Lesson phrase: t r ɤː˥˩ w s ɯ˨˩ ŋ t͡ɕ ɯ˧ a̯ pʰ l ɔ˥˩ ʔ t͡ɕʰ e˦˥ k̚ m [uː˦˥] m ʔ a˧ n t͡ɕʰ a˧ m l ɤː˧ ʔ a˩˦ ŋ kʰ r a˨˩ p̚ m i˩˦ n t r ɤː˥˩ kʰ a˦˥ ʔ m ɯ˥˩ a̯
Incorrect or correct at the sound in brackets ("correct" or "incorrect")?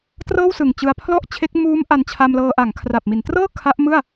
correct